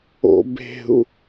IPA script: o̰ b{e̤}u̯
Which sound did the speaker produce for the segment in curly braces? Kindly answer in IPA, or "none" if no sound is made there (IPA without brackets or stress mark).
e̤